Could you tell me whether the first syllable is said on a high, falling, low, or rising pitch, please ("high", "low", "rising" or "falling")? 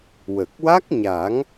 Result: low